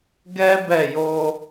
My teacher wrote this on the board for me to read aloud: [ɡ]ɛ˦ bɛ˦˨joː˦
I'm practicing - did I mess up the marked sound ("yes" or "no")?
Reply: no